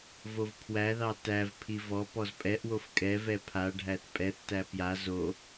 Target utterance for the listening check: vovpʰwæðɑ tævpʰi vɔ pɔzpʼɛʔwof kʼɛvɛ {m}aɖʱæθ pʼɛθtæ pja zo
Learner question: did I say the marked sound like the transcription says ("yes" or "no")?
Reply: no